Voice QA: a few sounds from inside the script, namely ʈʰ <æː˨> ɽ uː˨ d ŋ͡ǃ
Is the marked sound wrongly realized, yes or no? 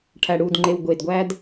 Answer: yes